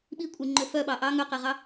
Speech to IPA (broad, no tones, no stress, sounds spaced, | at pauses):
ɓ i kʷʼ e ŋ͡ǃ ø f œ ɓ ɑ ʔ ɑ ŋ ø q e ʁ ɑ